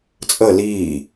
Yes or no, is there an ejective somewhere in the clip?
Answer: yes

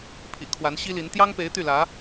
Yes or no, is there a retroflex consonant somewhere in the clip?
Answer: no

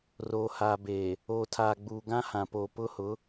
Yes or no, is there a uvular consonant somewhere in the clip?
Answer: no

